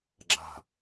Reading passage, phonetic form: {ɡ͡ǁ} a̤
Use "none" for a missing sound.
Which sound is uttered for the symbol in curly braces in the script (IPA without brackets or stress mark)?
ɡ͡ǁ